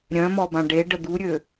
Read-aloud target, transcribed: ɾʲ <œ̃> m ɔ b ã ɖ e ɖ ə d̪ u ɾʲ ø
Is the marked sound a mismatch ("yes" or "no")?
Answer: no